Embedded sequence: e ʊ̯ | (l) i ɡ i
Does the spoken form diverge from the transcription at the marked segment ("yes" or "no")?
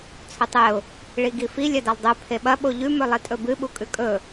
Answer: yes